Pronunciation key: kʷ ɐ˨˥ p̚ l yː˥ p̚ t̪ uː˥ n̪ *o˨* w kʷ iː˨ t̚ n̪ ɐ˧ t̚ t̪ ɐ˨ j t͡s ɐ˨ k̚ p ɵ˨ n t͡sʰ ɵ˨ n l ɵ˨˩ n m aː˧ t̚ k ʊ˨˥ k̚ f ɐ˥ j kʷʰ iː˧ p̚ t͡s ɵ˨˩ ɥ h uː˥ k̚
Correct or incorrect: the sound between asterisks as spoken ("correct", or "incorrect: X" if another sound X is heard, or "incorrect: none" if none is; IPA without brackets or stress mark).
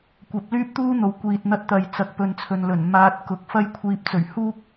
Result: correct